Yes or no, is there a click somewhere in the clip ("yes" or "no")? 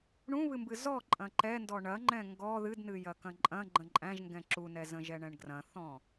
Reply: yes